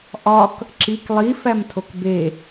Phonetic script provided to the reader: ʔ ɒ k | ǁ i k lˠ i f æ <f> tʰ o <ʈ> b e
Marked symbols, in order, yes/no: no, no

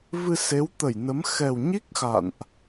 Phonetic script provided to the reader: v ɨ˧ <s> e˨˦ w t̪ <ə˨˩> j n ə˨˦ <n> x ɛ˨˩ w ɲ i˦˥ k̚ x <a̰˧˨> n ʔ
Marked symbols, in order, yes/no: yes, no, no, yes

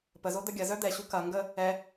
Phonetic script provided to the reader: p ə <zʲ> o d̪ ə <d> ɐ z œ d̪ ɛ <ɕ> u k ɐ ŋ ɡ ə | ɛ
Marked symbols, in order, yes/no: no, no, yes

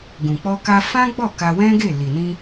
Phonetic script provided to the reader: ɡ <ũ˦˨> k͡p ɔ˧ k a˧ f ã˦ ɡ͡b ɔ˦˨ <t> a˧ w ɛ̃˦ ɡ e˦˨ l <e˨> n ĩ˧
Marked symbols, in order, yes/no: no, no, no

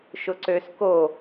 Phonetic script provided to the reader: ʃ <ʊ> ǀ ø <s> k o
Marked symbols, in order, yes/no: yes, yes

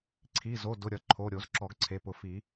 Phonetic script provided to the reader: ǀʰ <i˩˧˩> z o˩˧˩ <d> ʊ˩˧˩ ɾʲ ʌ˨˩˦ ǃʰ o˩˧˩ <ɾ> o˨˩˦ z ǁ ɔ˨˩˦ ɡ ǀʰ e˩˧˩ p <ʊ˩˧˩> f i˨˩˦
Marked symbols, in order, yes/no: yes, yes, no, no

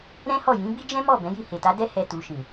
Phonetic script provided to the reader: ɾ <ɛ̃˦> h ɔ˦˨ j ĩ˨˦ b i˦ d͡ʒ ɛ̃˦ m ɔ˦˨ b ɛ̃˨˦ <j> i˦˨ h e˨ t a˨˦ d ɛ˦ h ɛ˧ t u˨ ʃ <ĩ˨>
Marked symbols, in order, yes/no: yes, yes, yes

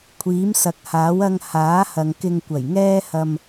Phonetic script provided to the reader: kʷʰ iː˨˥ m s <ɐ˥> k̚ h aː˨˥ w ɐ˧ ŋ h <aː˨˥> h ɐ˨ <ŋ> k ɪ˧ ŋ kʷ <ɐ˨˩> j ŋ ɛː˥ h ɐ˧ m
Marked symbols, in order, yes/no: no, yes, yes, yes

